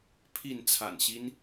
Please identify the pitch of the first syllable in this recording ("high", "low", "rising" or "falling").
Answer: falling